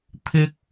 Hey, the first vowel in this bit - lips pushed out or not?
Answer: no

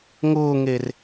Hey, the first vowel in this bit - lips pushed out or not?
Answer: yes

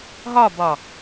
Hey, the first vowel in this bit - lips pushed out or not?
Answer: yes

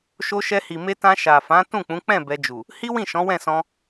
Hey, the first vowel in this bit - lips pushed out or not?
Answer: yes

